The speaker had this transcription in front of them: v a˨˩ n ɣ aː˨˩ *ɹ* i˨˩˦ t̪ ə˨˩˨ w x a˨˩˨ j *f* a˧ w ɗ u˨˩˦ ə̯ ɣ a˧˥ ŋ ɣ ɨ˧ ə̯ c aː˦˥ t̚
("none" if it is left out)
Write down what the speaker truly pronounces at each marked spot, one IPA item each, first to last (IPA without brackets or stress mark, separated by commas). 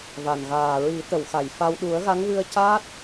ɹ, f